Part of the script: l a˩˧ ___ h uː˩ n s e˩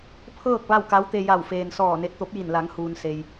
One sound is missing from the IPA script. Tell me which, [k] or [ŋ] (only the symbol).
ŋ